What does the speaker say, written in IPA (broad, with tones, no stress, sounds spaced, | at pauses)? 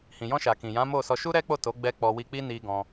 h ĩ˨ j ɔ̃˧ ʃ a˨ k ĩ˨ j ã˨˦ m o˦˨ s ɔ˧ ʃ u˦ ɾ ɛ˦ k͡p o˦˨ t o˨˦ ɡ͡b ɛ˧ k͡p ɔ˧ w i˧ k͡p i˦ n i˧ ɡ ɔ̃˧